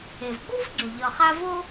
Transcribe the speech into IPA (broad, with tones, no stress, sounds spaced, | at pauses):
e˩ v ɡ͡b u˥ v ɟ o˩ ʎ ʌ˨ χ a˦ v o˥